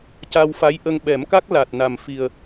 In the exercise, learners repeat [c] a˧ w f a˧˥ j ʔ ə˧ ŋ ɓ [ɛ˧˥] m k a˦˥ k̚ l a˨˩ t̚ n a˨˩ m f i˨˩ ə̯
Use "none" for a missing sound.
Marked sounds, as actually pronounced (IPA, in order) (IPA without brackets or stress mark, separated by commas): c, ɛ˨˩˦